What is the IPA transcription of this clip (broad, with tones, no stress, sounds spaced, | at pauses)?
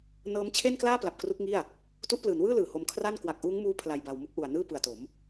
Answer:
n ɤː˦˥ m t͡ɕʰ e˥˩ n k l aː˥˩ p l a˨˩ p̚ k r u˦˥ k̚ ŋ i˥˩ a̯ | t u˦˥ ʔ p l ɯː˩˦ n w ɯː˥˩ l ɯː˨˩ h o˧ m kʰ r a˥˩ n k w a˨˩ k̚ ʔ uː˦˥ ŋ m uː˦˥ pʰ l a˧ j b a˧ w m u˥˩ k̚ ʔ u˨˩ a̯ n ɯː˥˩ p ɯ˨˩ a̯ t o˩˦ m